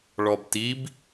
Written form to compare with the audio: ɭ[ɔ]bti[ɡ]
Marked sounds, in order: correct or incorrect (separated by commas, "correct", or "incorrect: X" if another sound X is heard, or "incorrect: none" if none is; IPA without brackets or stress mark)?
correct, incorrect: b